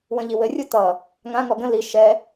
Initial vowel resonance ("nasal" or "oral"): nasal